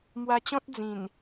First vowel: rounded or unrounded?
unrounded